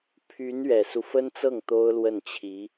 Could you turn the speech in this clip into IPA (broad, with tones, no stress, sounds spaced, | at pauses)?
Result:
pʰ y˧˥ n ɥ ɛ˨˩ s u˦ f ə˥ n t͡s ɤ˥˩ ŋ t̪ o˥ ʊ̯ l w ə˥˩ n t͡ɕʰ i˧˥